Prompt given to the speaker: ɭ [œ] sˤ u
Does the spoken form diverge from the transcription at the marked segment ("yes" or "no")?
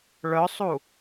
no